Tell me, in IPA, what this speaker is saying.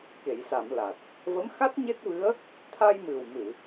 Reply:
ke˨˩˨jsa˨˩˨m la˨˩t̚ | və˧˥mxa˦˥t̚ɲe˦˥t̚vɨ˧˥ə̯ | t̪ʰa˧jmɨ˨˩wmɨ˨˩˨

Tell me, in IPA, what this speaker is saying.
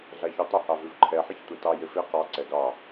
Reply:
ɮaçutˤɪ hɑvʉvǃʰɛ ħɪçtʷetɑ jɪfe qɑ ǀɛɡɑ

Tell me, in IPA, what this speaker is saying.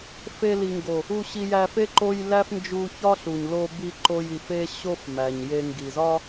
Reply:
fe˧ li˨ŋɡo˨ | u˧ɕi˧jæ˧fe˦ ǃo˧j læ˦fnd͡ʒu˧çɒ˦ɬu˨ɲ lo˧bi˧ǃo˧j i˨fe˧ ɕo˧f mæ˨ɲje˧ ŋɡi˨zɒ˦

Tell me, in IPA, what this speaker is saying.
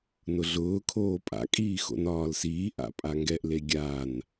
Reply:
nʊɮʊːkʰoː pʼa̰kʼiː xo̰nɒːlsiː ʔa̰pʼaŋɡɛʔ leɡʲan

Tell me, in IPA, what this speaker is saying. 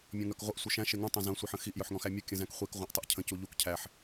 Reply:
mʲɔ̃ŋœkʁʷəʔ sʷœʃæ̃ ʃeŋũ tˤœ̃zœ̃ sʷiħə̃xiʔ jœħŋɔ̃xæmʲu kʲə̃zæ̃kχʷik ʁʷæ̃ʔtˤəʔcʰə̃ cuʎuk cʰæħ

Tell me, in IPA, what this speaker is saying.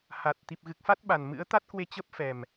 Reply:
ha˨˩t̚ t̪i˨˩p̚ɣɨ˨˩k̚fa˦˥t̚ ɓa˨˩nmɨ̰˧˥ə̯ t̪a˦˥t̚kwe˧ t͡ɕə˦˥p̚fɛ˨˩m

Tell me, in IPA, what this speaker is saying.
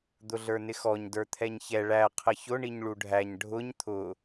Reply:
d̪ʊɮə˞nɪxɔɲ də˞t̪ʰɛɲçɛ ɭæ qʰəçʊ ɳiɲɭuɖʱæɲ ɖʱʊɲ t̪ʰʊ

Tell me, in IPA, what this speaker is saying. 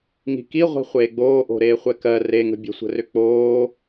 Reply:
ŋi̤ki ʁʷi̤χʷeːɡ͡boːʔo̤ ɾeːχʷɛkɜ reŋə̤ bʲə̤sʷə̤rʏ k͡poː

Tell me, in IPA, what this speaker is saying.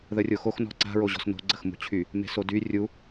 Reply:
ðərʲoxox nɔ̤ǀa̤ ɹoʑɔ̤sno̤ ɡ͡ǀəxmṳt͡ɕʰy | me̤sody rʲu

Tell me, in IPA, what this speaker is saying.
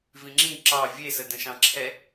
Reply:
vĩŋ͡ǁĩ ǁɑ vʲesə də̃ʃɑ̃ǁʰɛ

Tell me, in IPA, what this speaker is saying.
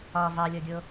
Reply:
ɒ vɑlʲɔɡʲo

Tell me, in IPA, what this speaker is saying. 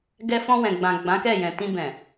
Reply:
ɡɛ˧fɔ̃˧wɛ̃˨ ɡ͡bã˨ ɡ͡bã˨˦kɛ˦˨jɛ̃˨ tĩ˧bɛ̃˨

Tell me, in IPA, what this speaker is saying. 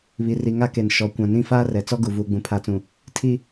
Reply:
βi˨ri˨ŋa˦ke˨n ʃɔ˨ kʷã˨nĩ˦ faː˦rɛ˨t͡sɔ˦ɡu˨ vuː˨ɡ͡bũ˨pʰa˨˦t͡sũ˨ | tʰi˦

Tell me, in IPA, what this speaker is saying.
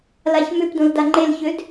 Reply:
laçmʏpdõl daŋ͡ǃelçød

